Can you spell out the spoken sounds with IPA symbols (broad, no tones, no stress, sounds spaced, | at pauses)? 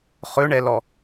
χ ɵ ɳ ɛ l ɔ